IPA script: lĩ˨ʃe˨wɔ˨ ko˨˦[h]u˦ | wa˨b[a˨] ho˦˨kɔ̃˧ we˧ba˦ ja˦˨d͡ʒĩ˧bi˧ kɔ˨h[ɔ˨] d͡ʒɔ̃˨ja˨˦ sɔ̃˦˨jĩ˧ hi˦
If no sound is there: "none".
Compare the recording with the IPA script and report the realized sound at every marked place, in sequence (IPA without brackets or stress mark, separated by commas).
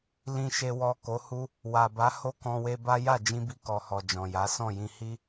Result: h, a˨˦, ɔ˨